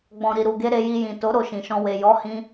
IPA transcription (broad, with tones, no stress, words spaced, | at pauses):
ɡ͡bɔ̃˨ɾi˨ɾu˨ɡe˧ ɾe˧ji˧ jĩ˨to˨˦ ɾo˧ʃĩ˨ʃɔ̃˧ we˨jɔ˨˦hĩ˧